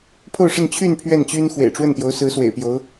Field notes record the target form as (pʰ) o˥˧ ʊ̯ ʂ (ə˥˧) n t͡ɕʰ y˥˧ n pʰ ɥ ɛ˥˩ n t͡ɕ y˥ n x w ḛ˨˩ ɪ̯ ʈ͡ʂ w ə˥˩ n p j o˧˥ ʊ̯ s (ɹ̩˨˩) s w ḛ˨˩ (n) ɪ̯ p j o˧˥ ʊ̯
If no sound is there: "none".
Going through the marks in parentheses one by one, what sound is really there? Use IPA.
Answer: pʰ, ə˥˧, ɹ̩˧˥, none

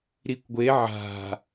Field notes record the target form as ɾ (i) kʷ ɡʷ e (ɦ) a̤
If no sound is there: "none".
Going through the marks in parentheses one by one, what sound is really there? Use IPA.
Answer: i, ʕ

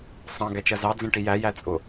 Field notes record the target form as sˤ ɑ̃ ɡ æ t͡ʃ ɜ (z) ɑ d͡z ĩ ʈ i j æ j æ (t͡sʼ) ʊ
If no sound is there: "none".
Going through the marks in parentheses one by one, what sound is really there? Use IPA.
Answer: z, t͡sʼ

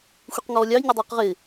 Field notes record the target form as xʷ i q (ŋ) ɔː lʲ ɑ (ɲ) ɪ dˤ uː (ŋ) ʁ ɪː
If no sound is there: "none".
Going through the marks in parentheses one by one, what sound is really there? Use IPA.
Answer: ŋ, ɲ, q

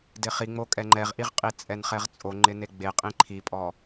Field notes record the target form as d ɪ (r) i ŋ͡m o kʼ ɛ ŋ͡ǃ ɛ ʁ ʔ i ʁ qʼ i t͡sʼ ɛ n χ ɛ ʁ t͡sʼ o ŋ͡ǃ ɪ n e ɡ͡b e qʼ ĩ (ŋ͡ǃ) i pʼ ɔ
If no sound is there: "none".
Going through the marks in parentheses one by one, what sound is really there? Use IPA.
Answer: χ, ǃʰ

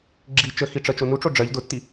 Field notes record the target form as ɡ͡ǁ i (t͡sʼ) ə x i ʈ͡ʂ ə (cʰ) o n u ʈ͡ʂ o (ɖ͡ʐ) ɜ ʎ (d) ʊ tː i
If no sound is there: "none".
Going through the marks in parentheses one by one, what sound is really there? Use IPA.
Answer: t͡ʃ, t͡ʃ, ɖ͡ʐ, d

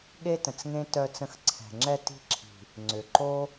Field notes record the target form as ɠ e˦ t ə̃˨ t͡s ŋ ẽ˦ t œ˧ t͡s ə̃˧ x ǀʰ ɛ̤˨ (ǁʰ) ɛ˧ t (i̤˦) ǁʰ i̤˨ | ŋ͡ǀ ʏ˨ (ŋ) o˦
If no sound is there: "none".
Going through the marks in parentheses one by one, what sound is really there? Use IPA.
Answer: ŋ͡ǁ, i̤˧, ǃ

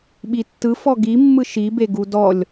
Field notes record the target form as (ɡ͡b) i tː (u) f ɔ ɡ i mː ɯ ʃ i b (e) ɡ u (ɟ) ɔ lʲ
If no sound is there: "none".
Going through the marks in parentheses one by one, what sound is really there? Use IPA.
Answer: ɓ, ɯ, e, d

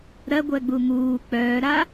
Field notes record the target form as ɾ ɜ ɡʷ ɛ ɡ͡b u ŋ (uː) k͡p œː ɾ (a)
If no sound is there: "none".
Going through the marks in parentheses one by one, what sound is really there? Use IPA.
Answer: uː, a

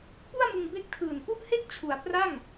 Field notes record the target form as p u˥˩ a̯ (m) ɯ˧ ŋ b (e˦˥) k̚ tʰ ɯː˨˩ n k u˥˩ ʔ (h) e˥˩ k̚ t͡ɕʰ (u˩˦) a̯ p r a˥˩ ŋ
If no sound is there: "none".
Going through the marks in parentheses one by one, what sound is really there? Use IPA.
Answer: m, e˦˥, h, u˩˦

